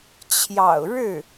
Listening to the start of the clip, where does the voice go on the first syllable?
low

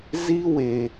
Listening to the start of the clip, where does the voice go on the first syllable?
high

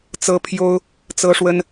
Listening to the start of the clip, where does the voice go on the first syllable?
high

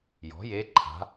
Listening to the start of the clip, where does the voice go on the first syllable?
rising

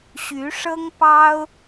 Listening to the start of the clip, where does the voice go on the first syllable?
rising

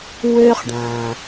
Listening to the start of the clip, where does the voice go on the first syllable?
high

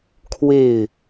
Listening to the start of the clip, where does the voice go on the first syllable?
falling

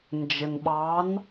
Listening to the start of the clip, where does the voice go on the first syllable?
low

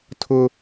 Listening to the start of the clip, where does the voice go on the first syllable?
high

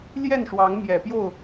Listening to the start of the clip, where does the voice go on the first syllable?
falling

